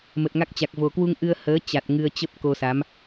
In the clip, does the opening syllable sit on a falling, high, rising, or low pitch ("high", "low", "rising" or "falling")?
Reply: low